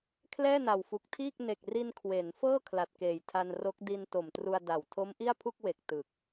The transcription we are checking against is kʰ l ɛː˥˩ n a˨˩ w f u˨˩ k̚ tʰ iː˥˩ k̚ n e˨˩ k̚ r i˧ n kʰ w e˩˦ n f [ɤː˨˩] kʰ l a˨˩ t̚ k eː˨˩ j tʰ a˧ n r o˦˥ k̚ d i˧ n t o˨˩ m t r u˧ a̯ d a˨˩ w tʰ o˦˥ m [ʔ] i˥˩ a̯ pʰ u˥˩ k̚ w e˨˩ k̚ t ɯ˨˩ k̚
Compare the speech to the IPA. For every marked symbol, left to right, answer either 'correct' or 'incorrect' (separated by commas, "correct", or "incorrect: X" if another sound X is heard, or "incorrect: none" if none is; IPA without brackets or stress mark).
incorrect: ɤː˥˩, correct